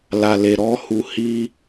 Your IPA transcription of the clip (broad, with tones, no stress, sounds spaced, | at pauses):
l a˨ l e˨ ɾ ɔ˧ h u˨ h i˧